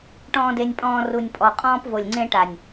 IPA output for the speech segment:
ʈ ɔ̃ː˨ d e˨ nʲ pʼ ɔ̃ː˨ r u˨ nʲ pʼ ɔ˨ qʼ ɔ̃ː˦ p v o˨ lʲ ŋ͡ǀ ẽ˦ ʈ a˨ nʲ

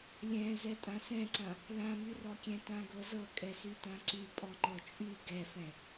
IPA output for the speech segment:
lʲ ɛ̃ z ɛ tʼ ã s ɛ̃ ǀ ã | l ã m y r ɔ kʲ ɛ̃ t ã ɡ ɤ z ɤ kʼ ɛ s y t ã ǀ y pʼ ɔ ŋ͡ǃ ɤ t͡ʃʼ y ɡ ɛ f ɛ̃

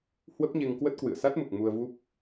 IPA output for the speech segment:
h w ə˦˥ p̚ ɲ e˧ ŋ k w ə˦˥ t̚ k w ɨ̰˧˨ ə̯ s a˦˥ t̚ m u˨˩ k̚ m u˧ ə̯ v u˦˥ p̚

